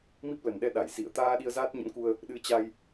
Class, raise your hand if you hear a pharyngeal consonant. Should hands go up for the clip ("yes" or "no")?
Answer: no